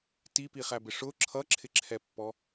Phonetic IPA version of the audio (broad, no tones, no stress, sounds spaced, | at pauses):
t i p i χ æ b ɪ ʂ ʊ ǁʰ ʌ ǁʰ ɪ ǁʰ ɛ pː ɔ